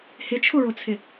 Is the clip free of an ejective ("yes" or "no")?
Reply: yes